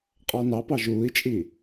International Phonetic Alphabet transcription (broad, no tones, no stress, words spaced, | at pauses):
qʼɑnɑpɑ ʒuːi̯t͡ʃʼi